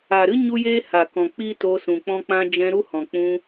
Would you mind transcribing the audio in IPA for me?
a˨ ɾ ɨ˦ ɲ u˦ j eː˦ h a˨ k ɔ̃˨ k͡p i˦ t o˧ s ũ˨ k͡p ɔ̃˦ k͡p ã˦ d͡ʒ ɛ̃˧ ɾ u˦ h ɔ̃˨ k͡p ũ˧

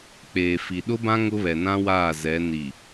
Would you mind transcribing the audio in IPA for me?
k͡p eː˨ f i˨ ɗ ʊ˦ b ã˦ ŋ ʊ˦ β ɛ˨ n ã˦ w aː˦˨ z ɛ˨˦ n i˨

